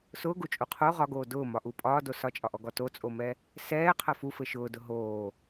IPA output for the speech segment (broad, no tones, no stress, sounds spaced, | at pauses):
s ʊː ɡ u t͡ʃʼ u qʰ o ʁ ɒ ɡ oː d ʊː m ɒ ʔ u pʼ ɒː d o s ɒ t͡ʃʼ ɒ ʔ ɔ ɡ ɔ t o t͡sʼ o m ɛ | s ɛː qʰ ɐ f u f ɘ ʃ ʊː d ʊ ɦ oː